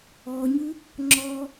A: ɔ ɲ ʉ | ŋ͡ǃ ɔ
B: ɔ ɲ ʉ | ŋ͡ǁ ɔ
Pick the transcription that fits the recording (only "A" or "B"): B